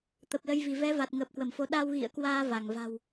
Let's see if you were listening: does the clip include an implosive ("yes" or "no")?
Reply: yes